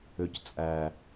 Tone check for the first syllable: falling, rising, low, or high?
low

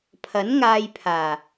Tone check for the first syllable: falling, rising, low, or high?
rising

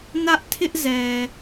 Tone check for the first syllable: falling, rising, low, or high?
high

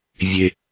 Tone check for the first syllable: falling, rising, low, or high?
low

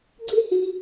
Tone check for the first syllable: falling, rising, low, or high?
high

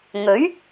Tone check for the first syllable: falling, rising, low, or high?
rising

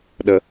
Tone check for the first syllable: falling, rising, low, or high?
low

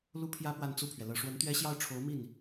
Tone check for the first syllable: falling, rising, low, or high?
high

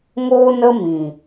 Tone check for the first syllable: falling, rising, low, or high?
high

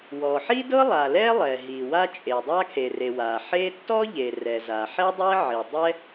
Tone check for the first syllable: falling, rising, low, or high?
low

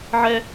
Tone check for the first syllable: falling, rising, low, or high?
high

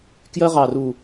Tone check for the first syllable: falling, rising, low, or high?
high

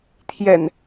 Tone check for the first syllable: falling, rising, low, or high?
low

